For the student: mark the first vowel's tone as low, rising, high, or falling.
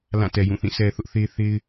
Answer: falling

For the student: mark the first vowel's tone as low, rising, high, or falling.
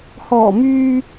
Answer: low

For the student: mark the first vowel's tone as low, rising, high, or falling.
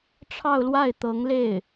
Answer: falling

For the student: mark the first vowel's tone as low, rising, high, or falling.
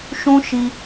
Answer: high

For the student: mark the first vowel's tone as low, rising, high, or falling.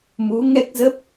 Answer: rising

